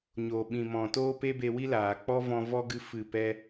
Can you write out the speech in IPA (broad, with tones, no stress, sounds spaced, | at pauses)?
ɲ o˨ ɓ ĩ˨ m ɔ̃˨ t oː˦ p e˦ b e˧ w i˦ l aː˨ k͡p ɔ˦ v ɔ̃˧ v ɔ˦ ɡ ɨ˧ f ɨ˦˨ p ɛ˦